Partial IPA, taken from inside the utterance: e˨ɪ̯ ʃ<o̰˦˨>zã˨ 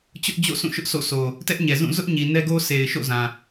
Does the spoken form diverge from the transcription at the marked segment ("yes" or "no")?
no